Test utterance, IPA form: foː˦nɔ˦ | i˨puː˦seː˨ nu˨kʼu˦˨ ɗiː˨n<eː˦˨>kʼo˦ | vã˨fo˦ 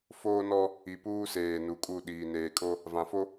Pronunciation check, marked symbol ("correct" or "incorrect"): incorrect